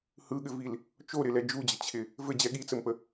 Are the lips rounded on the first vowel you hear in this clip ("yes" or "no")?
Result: no